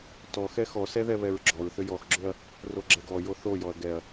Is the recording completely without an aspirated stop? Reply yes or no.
yes